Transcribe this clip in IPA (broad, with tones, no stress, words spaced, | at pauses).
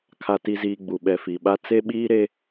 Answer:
kʰa˨ti˨ziː˨ ɡ͡bu˨ɓɛ˨fi˨ɓa˦ t͡se˦ɓiː˦ɾe˦